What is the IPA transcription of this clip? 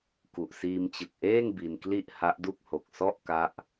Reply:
k u˨˩ ʔ s iː˧ m t͡ɕ ɯ˨˩ k̚ ʔ eː˥˩ ŋ b i˧ n k l i˥˩ ʔ h a˦˥ ʔ d u˥˩ k̚ h o˨˩ k̚ s ɔ˥˩ ʔ k a˦˥ ʔ

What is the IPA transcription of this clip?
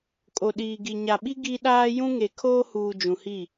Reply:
kʼ o˨ ɗ iː˨ ɡ i˨ ɲ a˨ ɓ i˦ ɡ i˦ ɗ aː˦ j ũ˦ ŋ e˨ kʰ oː˦ h uː˨ d͡ʒ ũ˨ h i˦˨

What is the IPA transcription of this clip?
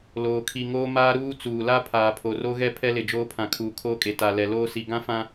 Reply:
l oː˨ kʰ i˨ ŋ oː˦ m aː˦ ɾ uː˦ t͡s uː˨ l a˦ pʰ aː˨ pʰ o˨ r o˦ ɣ ɛ˦ pʰ ɛ˦ l ɪ˨ d͡ʒ oː˦ pʰ ã˨ kʰ uː˨ kʰ oː˦ kʼ e˨ t a˨ l ɛ˨ l oː˦ s i˨ ɡ ã˦ f ã˦

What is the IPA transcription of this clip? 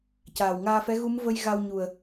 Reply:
c aː˨˩ w ŋ aː˧ f ɛ˧˥ ɣ u˧˥ m v ə˧ j ɣ a˧ w ɲ u˨˩ ə̯

